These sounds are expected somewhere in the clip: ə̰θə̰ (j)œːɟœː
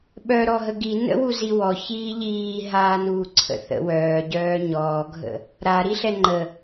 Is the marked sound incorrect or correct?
incorrect